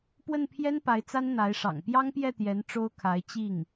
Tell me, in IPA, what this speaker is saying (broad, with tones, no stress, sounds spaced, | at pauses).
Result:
p w ə˥˩ n pʰ j ɛ˥ n p a˧˥ ɪ̯ t͡s a˥ n n̪ a˧˥ ɪ̯ ʂ ɑ̰˨˩ ŋ p j ɑ˥ ŋ p j ɛ˥˩ t̪ j ɛ˧˥ n ʈ͡ʂ o˥ ʊ̯ kʰ a˧˥ ɪ̯ t͡ɕ i˥˩ ŋ